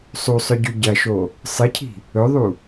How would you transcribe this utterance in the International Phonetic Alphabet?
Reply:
sˤusˤɵɟʉ ɟɐʃo | sˤɨcʰi̤ | ɵðˤu

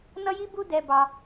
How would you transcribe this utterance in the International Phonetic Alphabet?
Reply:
nʌ˦ji˦bu˦ dɛ˦bɑ˦

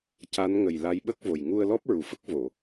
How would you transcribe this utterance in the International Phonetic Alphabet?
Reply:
ca˧˥nŋə˨˩j la˧˥jɓə˦˥k̚vo˨˩j ŋu˧ə̯lɔ˦˥p̚ ɹu˨˩ fə˦˥k̚ vo˨˩˨

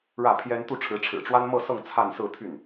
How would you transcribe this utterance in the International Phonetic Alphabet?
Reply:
ɻä˥˩pʰjɛ˥n t̪u˥˩ʈ͡ʂʰɻ̩˧˥ ʈ͡ʂʰɻ̩˨˩ʈ͡ʂwa˥nmɤ˥˧sɤ˥˧ŋ t͡sʰa˥˧nsɹ̩˥˧t̪ʰy˥˩n

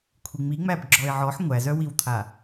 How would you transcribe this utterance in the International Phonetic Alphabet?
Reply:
kʷʰiŋ͡mi ŋ͡mæbɡ͡ǁɔɪ̯ʕɔħ ŋʷæzœwiwt̪ʰa

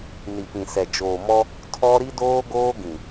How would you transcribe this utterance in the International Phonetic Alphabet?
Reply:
ni˨pĩ˨sɛ˨ d͡ʒoː˨mɔ˦ | tʰɔ˦ ɾi˦doː˦ɡoː˦ ɡĩ˨

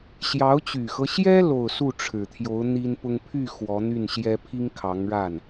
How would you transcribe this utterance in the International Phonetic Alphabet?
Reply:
ɕjɑ˧˥ʊ̯t͡ɕy˨˩xɤ˦ɕjɛ˥ lo˥˧ʊ̯ su˥˩ʈ͡ʂʰɻ̩˨˩t̪ʰjo˧˥ʊ̯ n̪i˥npʊ˥ŋ pʰy˥˩ xwɔ˧˥n̪y˥˩nɕjɛ˥ pʰi˥ŋkʰɑ˧˥ŋɻa˥˩n

